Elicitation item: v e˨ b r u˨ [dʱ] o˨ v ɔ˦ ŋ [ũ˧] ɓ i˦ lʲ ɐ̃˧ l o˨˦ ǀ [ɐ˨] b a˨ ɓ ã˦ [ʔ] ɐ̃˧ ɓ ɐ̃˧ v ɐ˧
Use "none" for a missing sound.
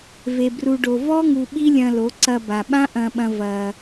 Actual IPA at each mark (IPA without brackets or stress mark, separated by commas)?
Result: ɖ, u˧, ɐ˧, ʔ